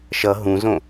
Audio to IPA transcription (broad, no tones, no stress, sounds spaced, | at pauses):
ʃ ʌ ɦ ũ z õ